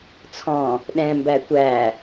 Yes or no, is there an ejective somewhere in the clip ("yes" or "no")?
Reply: no